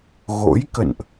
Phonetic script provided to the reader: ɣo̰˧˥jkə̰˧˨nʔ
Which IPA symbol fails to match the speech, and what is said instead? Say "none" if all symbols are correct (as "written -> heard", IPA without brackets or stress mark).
none